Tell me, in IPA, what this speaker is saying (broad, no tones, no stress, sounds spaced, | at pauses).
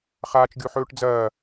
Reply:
χ aː t͡ʃ ɡʲ o ħ ɵː ʈ d͡z ɐː